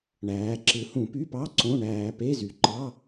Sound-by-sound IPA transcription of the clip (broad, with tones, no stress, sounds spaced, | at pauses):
ɳ æː˩˧ ǁ ɯ˩˧ h ũ˧˩˧ p y˧˥˧ p ɑ˧˥˧ ǀ õ˧˥˧ ɳ æː˧ p e˧˥˧ z y˩˧ ǃ ɑ˧˥˧